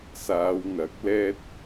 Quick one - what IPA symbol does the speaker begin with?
s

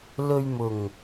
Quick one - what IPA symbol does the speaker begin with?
l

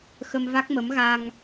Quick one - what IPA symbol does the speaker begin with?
x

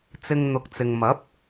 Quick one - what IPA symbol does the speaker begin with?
t͡s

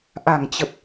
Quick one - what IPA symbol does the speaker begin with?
ʔ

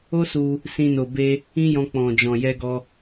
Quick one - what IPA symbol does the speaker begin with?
o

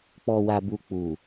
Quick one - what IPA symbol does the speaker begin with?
k͡p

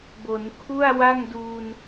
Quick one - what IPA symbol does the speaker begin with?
b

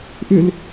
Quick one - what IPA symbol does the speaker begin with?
ʔ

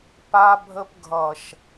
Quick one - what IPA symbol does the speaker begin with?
p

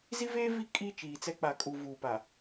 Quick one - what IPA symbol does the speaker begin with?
z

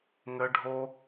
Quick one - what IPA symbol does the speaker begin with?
ŋ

